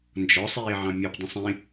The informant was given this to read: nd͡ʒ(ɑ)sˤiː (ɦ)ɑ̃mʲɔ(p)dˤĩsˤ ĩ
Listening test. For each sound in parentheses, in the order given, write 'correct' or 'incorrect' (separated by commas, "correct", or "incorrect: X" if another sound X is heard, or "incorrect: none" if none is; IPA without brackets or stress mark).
incorrect: ɔ, incorrect: ʕ, correct